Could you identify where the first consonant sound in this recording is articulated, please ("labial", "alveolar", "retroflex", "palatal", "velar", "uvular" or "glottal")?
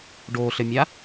retroflex